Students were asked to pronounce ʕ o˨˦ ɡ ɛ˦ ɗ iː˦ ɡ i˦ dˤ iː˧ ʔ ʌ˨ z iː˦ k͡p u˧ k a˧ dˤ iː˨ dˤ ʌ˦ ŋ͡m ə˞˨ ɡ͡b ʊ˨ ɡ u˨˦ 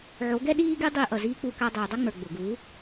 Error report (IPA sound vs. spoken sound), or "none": none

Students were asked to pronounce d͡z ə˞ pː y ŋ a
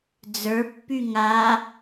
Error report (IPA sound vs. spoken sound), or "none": none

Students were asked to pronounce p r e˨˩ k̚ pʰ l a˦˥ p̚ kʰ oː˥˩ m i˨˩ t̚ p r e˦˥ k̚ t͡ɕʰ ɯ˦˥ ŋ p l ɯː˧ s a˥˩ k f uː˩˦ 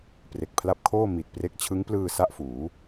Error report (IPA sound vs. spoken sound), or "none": k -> ʔ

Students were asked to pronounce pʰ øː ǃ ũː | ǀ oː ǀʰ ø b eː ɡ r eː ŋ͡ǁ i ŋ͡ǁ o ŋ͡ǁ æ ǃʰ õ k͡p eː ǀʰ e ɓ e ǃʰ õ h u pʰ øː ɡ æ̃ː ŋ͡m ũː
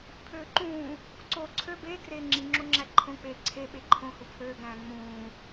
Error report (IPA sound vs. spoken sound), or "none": none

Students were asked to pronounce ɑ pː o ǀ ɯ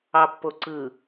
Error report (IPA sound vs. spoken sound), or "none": none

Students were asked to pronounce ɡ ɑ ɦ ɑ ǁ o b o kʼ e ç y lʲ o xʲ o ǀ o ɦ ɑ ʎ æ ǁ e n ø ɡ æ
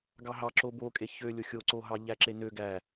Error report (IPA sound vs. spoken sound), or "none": y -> ø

